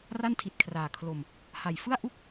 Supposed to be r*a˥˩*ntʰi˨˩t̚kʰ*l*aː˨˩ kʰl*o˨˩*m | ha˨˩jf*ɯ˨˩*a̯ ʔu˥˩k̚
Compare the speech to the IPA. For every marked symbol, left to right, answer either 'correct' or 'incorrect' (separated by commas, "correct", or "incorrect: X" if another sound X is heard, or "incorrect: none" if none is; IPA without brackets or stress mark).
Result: correct, incorrect: r, incorrect: o˧, incorrect: ɯ˥˩